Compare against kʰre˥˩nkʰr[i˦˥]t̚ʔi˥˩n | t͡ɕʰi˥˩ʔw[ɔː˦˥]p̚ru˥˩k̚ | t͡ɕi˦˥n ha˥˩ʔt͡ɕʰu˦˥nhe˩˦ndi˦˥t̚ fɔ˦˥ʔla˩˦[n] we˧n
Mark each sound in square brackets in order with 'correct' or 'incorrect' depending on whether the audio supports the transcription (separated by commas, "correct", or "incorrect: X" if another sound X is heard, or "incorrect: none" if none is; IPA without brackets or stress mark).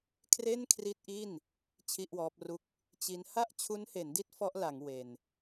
correct, correct, incorrect: ŋ